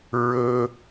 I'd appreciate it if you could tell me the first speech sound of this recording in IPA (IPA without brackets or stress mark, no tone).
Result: ɹ